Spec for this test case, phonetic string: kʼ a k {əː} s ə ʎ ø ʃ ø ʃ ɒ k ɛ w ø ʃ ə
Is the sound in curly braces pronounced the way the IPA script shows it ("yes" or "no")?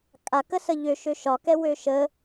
no